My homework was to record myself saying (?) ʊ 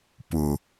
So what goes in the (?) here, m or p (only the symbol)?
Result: p